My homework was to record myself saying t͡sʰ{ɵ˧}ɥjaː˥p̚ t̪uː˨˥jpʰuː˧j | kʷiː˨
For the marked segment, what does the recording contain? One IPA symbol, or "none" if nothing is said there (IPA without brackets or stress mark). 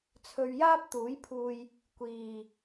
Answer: ɵ˧